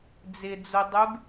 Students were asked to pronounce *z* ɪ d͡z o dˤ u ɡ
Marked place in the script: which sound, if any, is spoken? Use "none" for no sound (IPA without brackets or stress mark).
d͡z